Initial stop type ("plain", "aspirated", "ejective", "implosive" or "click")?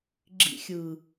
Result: click